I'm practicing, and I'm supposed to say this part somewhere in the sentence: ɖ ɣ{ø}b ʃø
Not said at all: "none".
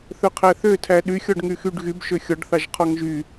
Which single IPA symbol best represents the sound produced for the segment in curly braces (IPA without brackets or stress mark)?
y